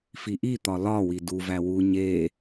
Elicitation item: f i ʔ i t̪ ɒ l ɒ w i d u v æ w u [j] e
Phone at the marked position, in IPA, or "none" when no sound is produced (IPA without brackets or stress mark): ɲ